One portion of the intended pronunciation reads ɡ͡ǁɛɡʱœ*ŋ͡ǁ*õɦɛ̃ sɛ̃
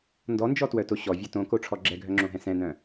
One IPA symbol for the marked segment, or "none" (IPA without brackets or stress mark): ŋ͡ǁ